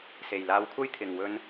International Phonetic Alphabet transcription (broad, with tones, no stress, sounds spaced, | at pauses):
s e˨ j l aː˧ w kʷʰ ɐ˥ j t̪ʰ ɪ˨ ŋ w ɵ˧ n